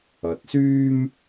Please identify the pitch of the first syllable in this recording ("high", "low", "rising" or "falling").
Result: rising